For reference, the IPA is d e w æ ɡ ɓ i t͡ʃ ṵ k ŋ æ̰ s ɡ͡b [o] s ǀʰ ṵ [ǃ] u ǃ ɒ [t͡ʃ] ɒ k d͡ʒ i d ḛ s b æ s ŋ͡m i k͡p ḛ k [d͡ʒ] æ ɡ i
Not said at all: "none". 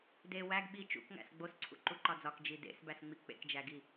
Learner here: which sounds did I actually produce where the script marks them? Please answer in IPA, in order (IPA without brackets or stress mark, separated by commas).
o, ǃ, d͡z, d͡ʒ